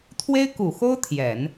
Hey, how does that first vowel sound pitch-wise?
high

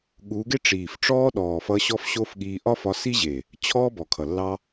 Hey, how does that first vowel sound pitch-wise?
rising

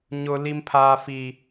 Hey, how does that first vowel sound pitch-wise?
high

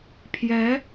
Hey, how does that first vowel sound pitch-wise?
rising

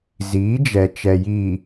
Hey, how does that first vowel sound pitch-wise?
rising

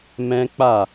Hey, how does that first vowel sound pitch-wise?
high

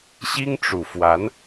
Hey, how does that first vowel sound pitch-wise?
high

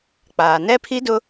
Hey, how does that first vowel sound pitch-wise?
low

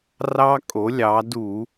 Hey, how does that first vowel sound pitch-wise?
high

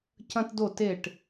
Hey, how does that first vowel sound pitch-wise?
high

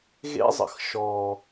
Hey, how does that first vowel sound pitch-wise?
high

